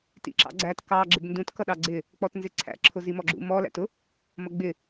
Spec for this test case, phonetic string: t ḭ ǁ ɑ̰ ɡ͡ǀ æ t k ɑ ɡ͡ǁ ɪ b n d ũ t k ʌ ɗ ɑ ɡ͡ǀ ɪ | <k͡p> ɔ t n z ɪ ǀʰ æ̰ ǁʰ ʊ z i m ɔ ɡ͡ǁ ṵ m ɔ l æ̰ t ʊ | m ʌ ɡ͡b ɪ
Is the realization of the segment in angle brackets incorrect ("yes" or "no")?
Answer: no